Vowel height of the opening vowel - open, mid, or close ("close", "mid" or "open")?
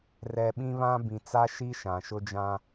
mid